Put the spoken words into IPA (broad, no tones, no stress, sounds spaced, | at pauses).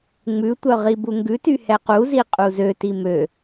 ŋ͡m ʉ tʷ œ ʁ i b u ŋ ɡ ʉ t y h ɛ q u z i qʼ u z ø t i m ø